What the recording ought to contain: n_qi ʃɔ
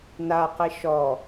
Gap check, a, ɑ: a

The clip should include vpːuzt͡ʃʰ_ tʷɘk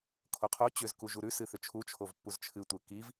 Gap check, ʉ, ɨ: ɨ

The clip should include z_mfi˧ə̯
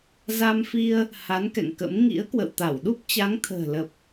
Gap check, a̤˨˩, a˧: a˧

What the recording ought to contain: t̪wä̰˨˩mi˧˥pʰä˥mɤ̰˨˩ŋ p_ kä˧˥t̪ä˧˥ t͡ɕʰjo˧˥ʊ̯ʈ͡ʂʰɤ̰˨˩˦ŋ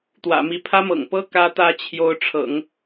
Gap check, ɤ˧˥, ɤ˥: ɤ˥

